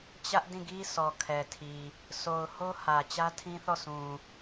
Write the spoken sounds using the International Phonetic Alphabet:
t͡ɕ ä˦ ʔ d ĩ˦˨ ɡ i˦ s ɔ˨ kʰ ɛ˨ tʰ i˨ | s o˨ ʊ̯ h o˦ h ä˨ t͡ɕ ä˦ tʰ ĩ˦ θ ɔ˦˨ s ũ˨

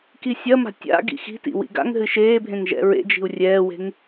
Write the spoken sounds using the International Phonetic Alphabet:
k i sʲ ɐ m a̤ tʲ a̰ ɡ ḭ x i̤ t ḭ w ḭ ɡ a̰ ŋ ɦ ɨ ʃ eː bʱ ẽ ŋ ʒ ɛ̰ ɹ ḛ d͡ʒ i̤ u̯ rʲ ɛː w e̤ ŋ

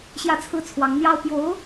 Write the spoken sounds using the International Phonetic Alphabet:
ɕ j ä˥˧ t͡sʰ ɹ̩˥˩ t͡sʰ w ɑ˧˥ ŋ n̪ j ɑ˥ ʊ̯ p j o˧˥ ʊ̯

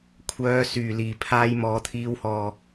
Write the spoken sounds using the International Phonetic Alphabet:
kʷʰ œː˧ s yː˨˩ l iː˨˩ pʰ aː˧ j m ɔː˨ t̪ʰ iː˨˥ w h ɔː˨˩

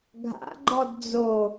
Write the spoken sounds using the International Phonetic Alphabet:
ɡʱ a̰ ɡ͡ǃ ɔ d d͡z o

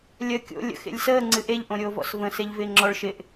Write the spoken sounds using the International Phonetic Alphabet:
lʲ əː kʲ o̰ lʲ ə̰ x ḛ lʲ s əː ŋ͡ǀ ɨ ʔ e ʎ ʔ õ ɾʲ oː v ɔ̰ s v ə̃ s e ʎ v ɪː ŋ͡ǁ ɔ ɭ ʃ ɪ ʔ

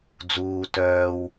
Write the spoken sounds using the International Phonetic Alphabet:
d͡z uː t œː w

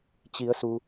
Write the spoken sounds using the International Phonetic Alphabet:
t͡ɕ i˩˧ ə̯ s u˩

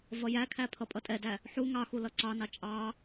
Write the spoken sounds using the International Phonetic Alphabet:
v ʌ j æ kʰ æ pʰ ʌ pʼ ʌ tʼ ɛ d æ | ħ u ŋ ɑ x u l ʌ ǀ ɑ n ɑ t͡ʃʼ ɑ

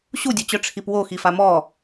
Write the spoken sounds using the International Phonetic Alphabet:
ɕ u dʲ o t͡ɕ œ ʈ͡ʂʰ i p w o x i f a m ɔ

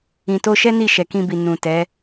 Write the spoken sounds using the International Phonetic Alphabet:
ĩ˨ t o˧ ʃ ɛ˦ n i˦˨ ʃ ɛ˨ k ĩ˧ b i˨ n ũ˨ t ɛ˨˦

